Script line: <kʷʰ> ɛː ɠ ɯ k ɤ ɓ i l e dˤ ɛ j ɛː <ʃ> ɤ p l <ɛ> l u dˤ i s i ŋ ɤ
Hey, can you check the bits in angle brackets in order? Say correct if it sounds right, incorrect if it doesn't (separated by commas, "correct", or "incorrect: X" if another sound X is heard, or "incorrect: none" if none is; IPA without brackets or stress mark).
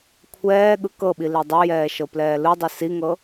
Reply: correct, correct, incorrect: ɛː